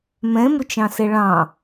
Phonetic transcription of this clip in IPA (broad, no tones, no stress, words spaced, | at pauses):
mɛ̃mʊt͡ʃɑ̃sɛ ɭɑ̃